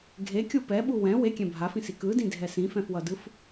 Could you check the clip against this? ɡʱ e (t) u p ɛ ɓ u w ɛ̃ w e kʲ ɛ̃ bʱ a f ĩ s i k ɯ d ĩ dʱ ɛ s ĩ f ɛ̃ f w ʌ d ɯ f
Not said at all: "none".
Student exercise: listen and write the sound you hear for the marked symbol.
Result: kʲ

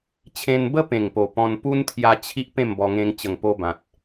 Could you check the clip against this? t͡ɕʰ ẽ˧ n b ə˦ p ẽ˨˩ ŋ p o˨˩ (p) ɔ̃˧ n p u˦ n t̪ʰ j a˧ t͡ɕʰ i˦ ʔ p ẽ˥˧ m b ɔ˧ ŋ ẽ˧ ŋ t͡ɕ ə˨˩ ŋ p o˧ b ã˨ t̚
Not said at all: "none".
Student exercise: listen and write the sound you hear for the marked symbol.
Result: p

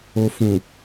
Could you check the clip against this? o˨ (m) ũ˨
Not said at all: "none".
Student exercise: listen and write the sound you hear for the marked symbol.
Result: f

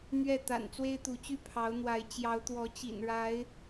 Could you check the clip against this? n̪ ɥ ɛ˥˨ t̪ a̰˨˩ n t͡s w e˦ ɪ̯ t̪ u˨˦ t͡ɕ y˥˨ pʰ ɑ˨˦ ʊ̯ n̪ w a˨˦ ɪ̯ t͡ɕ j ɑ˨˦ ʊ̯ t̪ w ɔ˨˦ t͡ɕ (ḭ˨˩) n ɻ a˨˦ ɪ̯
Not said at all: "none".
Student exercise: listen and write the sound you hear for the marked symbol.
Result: ḭ˨˩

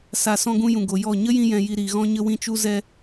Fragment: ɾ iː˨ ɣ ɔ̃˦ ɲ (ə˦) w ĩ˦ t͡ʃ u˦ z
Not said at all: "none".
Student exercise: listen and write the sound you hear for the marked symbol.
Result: ə˦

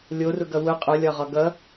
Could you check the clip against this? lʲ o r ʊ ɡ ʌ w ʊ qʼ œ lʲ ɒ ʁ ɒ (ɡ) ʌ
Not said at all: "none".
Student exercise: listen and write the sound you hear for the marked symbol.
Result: ɡ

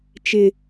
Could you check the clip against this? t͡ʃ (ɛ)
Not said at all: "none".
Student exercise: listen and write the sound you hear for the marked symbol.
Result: ɪ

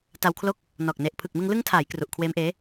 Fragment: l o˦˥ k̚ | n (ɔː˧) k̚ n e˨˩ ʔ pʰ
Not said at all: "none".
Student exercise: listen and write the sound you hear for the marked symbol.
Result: ɔː˨˩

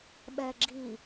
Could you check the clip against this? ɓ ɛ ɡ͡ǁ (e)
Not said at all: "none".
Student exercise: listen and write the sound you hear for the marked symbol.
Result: i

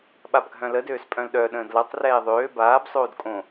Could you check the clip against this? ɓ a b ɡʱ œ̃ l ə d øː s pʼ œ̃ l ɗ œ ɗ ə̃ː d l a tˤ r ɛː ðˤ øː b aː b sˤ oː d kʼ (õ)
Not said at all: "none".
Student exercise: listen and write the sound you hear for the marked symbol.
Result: õ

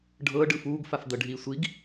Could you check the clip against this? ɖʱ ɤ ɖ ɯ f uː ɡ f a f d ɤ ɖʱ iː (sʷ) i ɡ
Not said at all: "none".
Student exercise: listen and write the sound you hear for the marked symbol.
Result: sʷ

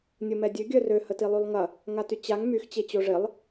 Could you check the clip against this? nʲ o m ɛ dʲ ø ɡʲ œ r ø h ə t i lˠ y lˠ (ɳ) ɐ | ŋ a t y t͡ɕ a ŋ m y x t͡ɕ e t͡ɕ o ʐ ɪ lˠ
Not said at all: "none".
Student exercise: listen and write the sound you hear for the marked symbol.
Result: ŋ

